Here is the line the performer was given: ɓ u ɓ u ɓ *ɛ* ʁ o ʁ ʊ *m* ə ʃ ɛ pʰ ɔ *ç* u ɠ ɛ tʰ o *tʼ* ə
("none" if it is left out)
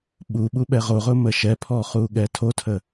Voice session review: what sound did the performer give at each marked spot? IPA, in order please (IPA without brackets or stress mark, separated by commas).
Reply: ɛ, m, χ, tʰ